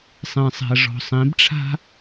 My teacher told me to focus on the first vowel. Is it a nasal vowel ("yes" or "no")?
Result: yes